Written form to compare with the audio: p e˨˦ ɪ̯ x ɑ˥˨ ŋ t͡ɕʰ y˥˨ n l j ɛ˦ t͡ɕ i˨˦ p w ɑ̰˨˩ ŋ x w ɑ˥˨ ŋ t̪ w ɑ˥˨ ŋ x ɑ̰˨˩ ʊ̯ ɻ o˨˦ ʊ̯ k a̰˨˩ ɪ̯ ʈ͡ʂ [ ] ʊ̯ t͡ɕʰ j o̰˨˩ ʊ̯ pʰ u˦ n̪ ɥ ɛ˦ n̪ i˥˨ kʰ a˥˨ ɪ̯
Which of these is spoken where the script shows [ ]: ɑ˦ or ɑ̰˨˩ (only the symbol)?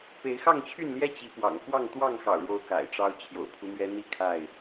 ɑ˦